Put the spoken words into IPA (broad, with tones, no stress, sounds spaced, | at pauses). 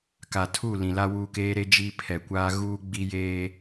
k a˨ tʰ u˦˨ l ĩ˨ l a˦ w uː˦ k eː˦ ɾ e˦ d͡ʒ i˦ pʰ ɛ˨ kʷ aː˦ ɣ uː˦ ɡ͡b i˦ j eː˦